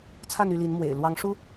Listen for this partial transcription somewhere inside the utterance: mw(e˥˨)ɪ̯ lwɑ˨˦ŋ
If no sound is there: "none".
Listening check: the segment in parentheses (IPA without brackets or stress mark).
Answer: ḛ˨˩